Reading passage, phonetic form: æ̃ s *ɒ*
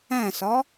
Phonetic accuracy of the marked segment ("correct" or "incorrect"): correct